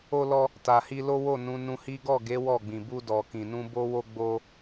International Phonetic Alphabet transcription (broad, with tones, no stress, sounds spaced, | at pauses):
o˧ l ɔ˧ | t a˨ h i˧ l o˦ w o˦˨ n ũ˨˦ n ũ˧ h i˦ ɡ ɔ˦˨ ɡ e˨˦ w ɔ˦˨ ɡ͡b ĩ˨ b u˧ d ɔ˨ k ĩ˨ n ũ˧ b o˦ w o˦ ɡ͡b o˦